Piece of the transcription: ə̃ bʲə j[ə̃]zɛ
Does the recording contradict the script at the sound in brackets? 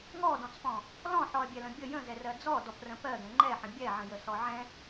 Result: no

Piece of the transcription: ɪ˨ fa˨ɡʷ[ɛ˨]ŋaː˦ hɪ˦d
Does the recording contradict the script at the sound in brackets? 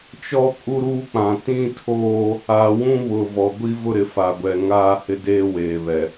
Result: no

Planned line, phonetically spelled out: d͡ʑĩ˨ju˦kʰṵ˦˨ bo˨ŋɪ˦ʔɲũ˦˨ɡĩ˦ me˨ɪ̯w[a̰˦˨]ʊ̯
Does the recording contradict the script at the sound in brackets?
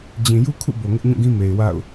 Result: no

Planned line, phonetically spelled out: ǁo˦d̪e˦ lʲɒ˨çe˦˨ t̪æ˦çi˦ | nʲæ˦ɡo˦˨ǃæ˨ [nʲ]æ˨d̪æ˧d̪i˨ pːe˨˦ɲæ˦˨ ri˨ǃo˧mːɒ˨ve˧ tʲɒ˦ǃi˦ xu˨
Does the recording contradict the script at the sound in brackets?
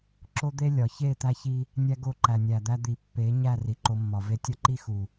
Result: no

